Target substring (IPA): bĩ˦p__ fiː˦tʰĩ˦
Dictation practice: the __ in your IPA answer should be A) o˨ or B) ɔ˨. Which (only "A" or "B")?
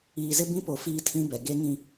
A